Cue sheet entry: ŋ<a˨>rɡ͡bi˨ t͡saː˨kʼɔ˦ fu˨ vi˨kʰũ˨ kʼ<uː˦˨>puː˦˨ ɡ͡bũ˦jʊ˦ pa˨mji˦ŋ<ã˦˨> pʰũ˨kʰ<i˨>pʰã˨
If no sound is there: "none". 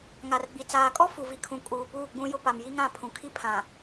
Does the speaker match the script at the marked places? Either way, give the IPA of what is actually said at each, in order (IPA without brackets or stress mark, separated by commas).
a˨, uː˨, ã˦˨, i˦